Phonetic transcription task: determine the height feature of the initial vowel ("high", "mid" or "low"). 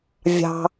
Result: low